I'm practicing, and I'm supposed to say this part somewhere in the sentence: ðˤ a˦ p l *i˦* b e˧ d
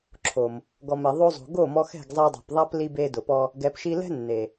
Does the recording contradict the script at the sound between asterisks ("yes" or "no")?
yes